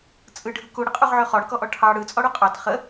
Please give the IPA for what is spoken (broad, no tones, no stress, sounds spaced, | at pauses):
t͡sʼ ɯ ɖʱ ɯ k u ɽ ə qʼ u ʁ ʕ ø χ ɔ ɽ ə k ɔ ʔ ɔ ʈʰ ɑ ɽ ɯ t͡sʼ ɔ ɽ u qʼ ɑ t χ ə